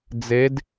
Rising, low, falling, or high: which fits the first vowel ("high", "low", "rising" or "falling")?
rising